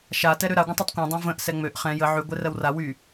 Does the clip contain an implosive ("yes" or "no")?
no